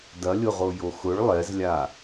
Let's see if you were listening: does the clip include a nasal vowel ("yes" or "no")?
no